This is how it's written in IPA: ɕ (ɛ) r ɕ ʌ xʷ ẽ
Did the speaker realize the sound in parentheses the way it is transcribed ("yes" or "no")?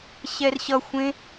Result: yes